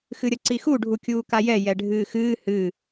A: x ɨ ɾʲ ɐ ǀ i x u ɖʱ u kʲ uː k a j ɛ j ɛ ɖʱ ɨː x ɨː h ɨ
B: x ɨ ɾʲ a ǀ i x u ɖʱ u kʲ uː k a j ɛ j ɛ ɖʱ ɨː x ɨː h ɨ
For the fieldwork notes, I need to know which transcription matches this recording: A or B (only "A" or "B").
A